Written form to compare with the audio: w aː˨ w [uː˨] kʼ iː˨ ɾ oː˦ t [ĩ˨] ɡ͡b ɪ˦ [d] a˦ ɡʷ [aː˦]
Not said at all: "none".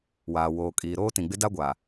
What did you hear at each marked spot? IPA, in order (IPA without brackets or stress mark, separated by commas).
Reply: oː˨, ĩ˨, d, aː˨